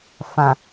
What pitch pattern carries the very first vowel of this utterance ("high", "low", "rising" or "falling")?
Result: low